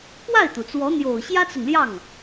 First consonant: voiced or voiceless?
voiceless